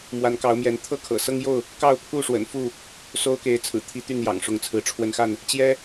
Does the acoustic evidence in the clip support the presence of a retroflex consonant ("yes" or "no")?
yes